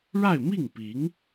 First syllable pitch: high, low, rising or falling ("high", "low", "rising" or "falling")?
falling